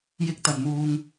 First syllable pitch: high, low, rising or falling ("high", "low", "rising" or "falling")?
high